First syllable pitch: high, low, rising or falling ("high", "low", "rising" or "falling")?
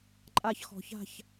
high